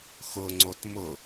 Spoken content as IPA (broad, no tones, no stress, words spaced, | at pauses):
xʊŋ͡ǀot mʊ